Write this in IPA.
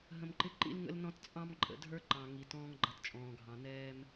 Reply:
ɦ ə̃˨ m ǃ ɪ˧ ǃ ḭ˦ l ŋ ə̰˦ l n ɔ̃˦ t t͡sʼ ɑ̃˦ m ǃʼ ə̰˨ dʱ ə˞˦ ǃ ɑ̃˨ ŋ i˨ t ɔ̃ː˧ ŋ ɡ͡ǃ ʌ˨ t t͡ʃʼ ɔ̃ː˨ ɡʱ ɑ̃˨ n ɛː˦ m

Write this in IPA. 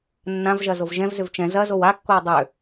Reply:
nː ã v ʒ ɐ z o v ʒ ɛ̃ v z ʏ v t͡ʃ ɛ̃ z ɐ z o w a kː o w dˤ ø

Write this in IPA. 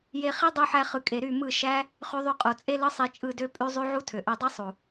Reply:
j e˧ χ i˦ dˤ y˦ ħ æ˦ χ ɯ˧ kʼ e˧ ɾ y˦˨ m ɯ˦˨ ʃ æ˦ | χ y˧ ðˤ y˧ qʼ o˨ t͡sʼ e˦ l ɯ˦ sˤ i˧ t͡ʃʼ ɯ˦˨ d ø˦ pʼ y˦ zˤ y˦ ʕ u˦ tʰ ø˨ ʔ ø˧ dˤ i˦ sˤ u˨

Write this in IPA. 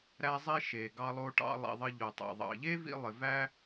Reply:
ɾ æ˦ zˤ i˦ ʃ e˨ ɡ ɑ˧ lˠ o˧ ʈ ɑ̰˧ lˠ ḭ˨ ðˤ ə˧ ʎ o˨ tˤ æ̰˨ ðˤ ɑ̰˨ ʎ e˦ v ḭ˧ lˠ ɪ˨ v æ˦

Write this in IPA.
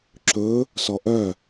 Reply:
ǁ ɵ | s ɔ ʔ œ

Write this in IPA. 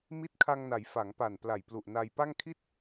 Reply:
m i˦˥ t̚ kʰ a˧ ŋ n a˩˦ j f a˩˦ ŋ p a˨˩ n p l a˨˩ j p l u˨˩ ʔ n a˧ j p a˥˩ ŋ kʰ i˥˩ t̚

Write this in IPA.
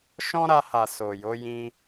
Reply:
ʃ ɔ̃˦ ɾ a˧ h a˨ s o˨ j o˨˦ j ĩ˧

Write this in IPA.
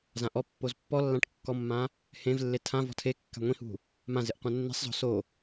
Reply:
z ã ʔ ɔ pː o z pː ɔ lː ã ʈ kː ɔ mː ã | h ẽ v lː e tʰ ã v ɔ̤ tʰ e kː a̤ ŋʷ ĩ h ṳ | m ã z ɪ ʔ qʷ ã nː i̤ sˤ z ɔ̤ s o

